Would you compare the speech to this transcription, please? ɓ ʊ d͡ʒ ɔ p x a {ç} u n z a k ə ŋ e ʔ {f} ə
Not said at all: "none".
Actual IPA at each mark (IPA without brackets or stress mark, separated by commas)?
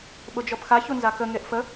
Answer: ç, f